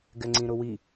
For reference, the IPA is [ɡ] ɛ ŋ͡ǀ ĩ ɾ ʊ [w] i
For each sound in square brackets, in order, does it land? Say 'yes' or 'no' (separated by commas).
yes, yes